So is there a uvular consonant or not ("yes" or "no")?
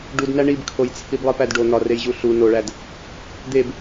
no